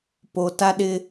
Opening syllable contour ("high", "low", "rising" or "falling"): low